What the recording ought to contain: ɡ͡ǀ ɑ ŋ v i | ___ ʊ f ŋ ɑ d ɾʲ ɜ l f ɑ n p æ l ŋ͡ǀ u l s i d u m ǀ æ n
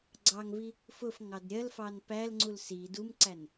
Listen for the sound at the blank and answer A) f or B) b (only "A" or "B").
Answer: A